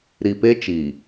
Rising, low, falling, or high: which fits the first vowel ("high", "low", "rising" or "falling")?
low